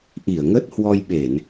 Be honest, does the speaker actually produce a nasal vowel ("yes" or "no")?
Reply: no